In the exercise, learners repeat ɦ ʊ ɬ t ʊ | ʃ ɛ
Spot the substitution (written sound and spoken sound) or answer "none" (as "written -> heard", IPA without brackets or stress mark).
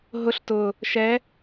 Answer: none